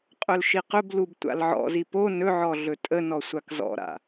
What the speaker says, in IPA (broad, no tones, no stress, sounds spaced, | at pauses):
qʼ ɵ l ʃ i q ɵ b l u b tʷ a̰ l ʕ ɔ̰ z i p o n ɵ ʕ ɔ ɮ ɵ tʼ ə n ɔ sʷ a k z ɔ̰ ɾ a̰